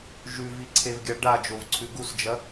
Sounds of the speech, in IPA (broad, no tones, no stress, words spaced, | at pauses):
ʒʉviǀʰevɡʲa ɖad͡ʒovǀʰʉ ɡusd͡ʒɐ